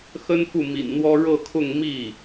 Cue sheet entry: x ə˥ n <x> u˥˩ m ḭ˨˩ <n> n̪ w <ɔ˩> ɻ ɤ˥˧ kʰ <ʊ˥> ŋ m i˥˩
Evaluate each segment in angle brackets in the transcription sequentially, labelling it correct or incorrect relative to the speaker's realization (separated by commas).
correct, correct, incorrect, incorrect